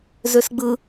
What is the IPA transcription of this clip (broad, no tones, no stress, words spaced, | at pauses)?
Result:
zøsɡ͡bɯ